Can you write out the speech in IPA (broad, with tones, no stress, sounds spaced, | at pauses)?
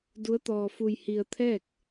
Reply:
d u˧˥ ə̯ t̪ ɔː˧ f u˧ j h i˧ ə̯ t̪ʰ ɛː˥˨ k̚